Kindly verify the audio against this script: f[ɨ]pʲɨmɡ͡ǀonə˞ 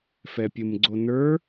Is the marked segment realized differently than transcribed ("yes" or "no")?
yes